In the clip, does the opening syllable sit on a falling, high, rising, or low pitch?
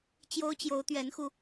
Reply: high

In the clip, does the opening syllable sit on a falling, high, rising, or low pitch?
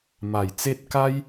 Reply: low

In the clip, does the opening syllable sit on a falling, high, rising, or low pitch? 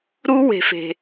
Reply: high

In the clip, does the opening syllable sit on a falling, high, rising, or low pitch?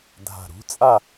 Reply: low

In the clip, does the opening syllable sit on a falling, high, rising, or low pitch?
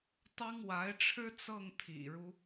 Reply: high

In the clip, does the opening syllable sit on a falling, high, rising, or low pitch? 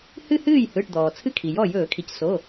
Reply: falling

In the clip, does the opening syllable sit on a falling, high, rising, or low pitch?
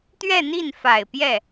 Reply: falling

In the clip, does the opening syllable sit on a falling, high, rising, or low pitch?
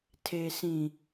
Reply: low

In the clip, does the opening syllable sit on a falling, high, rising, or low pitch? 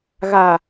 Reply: low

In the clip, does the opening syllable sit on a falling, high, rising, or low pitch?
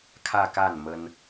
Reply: falling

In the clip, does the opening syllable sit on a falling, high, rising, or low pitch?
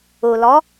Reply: low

